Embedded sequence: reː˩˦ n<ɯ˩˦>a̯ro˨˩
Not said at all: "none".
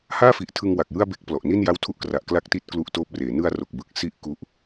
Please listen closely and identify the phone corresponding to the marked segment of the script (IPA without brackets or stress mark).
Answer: ɯ˧